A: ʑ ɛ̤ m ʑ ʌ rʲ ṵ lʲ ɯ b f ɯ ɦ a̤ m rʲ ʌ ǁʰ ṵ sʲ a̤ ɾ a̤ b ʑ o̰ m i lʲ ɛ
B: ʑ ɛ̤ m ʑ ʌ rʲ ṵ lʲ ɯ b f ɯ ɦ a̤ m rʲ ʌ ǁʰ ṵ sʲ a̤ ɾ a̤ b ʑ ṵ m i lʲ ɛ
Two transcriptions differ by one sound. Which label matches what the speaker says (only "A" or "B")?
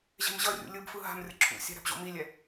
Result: A